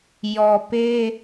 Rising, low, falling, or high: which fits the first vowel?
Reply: low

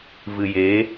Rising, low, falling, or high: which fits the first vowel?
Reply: low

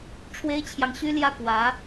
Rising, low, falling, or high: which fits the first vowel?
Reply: high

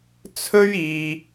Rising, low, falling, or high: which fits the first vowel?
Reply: high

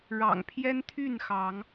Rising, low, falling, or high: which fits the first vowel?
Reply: low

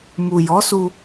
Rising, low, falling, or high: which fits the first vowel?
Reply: low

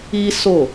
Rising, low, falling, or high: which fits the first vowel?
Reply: high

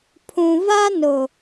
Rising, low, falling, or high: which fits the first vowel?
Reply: low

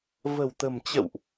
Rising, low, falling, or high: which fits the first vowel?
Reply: low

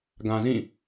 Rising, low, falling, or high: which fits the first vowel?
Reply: low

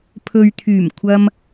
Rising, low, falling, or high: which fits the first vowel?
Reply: low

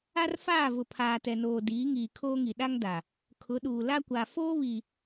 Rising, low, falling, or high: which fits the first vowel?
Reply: high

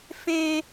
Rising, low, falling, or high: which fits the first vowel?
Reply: high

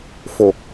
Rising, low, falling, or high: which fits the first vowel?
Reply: low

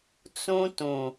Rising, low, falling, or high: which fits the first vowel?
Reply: high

